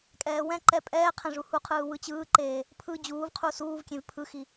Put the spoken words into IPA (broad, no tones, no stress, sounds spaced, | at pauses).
kʼ ɛː w ɛ̃ ǃ ɛ pʼ ɛː qʰ ɛ̃ ʐ u h u qʰ ɯː w ɯ t͡ɕ ɯː ǃ eː | pʰ ɯ d͡ʑ uː v qʰ u s uː v kʲ ẽ v pʰ ɯ x i